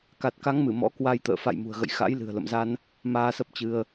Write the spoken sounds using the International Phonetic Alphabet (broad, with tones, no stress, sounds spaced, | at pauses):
k a˨˩ t̚ k a˨˦ ŋ m ɨ˧˩ m ɔ̰˧˥ k w a˧ j t̪ ə̰ː˧˨ f a̰˧˨ j m ṳ˨˩ ə̯ ɣ ə̰˧˨ j x a̰˧˥ j l ɨ̤˨˩ ə̯ l ə̰˧˨ m z a˧ n | m aː˧ s ə˦˥ p̚ t͡ɕ ɨ˧ ə̯